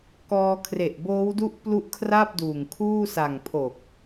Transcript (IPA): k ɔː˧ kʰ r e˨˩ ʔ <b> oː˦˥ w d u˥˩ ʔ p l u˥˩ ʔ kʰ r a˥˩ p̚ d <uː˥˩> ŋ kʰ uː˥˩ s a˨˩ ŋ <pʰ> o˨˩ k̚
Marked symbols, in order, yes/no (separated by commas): yes, no, yes